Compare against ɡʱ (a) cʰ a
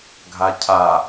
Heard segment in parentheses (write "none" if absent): a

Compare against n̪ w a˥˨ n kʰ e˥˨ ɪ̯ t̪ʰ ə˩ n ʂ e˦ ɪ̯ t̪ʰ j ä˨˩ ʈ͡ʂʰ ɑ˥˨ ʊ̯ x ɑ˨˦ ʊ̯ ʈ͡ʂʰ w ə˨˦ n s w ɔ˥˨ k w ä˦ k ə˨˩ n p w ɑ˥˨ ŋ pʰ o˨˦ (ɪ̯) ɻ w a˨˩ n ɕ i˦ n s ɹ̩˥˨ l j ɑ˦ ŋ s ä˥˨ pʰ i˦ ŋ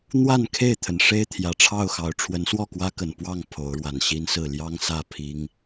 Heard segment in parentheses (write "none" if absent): ʊ̯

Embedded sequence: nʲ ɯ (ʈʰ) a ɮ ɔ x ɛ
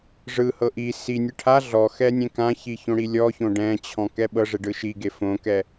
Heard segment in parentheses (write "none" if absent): ʈʰ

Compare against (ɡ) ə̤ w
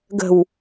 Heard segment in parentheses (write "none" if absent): ɡ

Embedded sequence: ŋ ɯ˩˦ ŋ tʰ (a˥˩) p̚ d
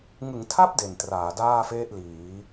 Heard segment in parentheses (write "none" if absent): a˥˩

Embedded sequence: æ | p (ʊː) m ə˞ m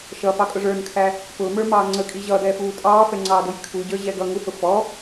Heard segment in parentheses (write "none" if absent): ʊː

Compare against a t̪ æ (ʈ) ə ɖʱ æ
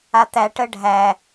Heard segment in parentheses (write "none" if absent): ʈ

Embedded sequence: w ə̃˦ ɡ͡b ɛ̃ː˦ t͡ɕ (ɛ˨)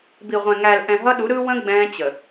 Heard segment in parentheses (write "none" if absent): ə˨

